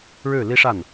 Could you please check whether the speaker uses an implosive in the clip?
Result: no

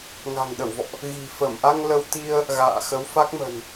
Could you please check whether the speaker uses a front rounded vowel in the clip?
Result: no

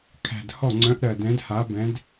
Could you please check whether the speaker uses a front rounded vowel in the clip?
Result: yes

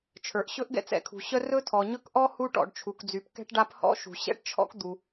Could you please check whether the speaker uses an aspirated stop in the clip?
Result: yes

